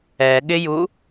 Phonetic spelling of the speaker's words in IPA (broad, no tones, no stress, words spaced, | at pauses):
ɛɠɪju